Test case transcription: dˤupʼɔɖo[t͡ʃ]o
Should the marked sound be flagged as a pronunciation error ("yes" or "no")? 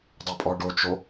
no